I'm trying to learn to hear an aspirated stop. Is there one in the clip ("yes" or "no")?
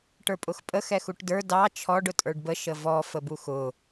yes